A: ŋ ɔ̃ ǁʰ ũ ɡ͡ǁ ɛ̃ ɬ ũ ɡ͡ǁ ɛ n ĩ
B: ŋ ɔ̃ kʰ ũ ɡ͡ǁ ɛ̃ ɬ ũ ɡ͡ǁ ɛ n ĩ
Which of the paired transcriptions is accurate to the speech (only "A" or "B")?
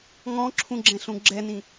A